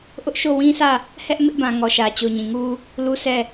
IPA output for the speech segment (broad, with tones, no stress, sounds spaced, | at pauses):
ʔ ʊ˦ ʔ ʃ o˦˨ w ĩ˦ sʰ ä˦˨ | h ɛ˦ ʔ m ɪ˦ ʔ b ã˨ ŋ ɔ˨ ʃ ä˨ t͡ɕ o˨ ɲ ĩ˨ ŋ u˦ | l u˦˨ s ɛ˦˨